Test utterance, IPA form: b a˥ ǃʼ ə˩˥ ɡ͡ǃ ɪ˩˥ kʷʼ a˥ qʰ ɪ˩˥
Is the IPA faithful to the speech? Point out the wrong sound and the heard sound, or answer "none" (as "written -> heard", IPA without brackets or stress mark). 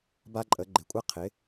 none